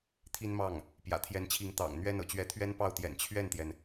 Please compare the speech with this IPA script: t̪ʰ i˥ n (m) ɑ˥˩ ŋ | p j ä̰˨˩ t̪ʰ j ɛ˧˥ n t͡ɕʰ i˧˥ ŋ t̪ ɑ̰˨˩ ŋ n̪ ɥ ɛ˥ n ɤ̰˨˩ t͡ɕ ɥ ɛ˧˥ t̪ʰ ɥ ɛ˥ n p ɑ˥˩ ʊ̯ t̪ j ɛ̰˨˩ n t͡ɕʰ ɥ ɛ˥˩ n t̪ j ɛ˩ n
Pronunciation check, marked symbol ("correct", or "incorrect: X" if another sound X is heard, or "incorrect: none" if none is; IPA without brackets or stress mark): correct